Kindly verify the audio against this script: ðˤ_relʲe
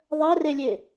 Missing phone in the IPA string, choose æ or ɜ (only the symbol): ɜ